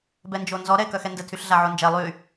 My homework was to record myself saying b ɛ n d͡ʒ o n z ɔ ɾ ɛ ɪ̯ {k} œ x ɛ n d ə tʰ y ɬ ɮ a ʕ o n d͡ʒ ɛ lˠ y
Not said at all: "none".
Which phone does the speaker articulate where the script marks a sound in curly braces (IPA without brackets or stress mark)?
k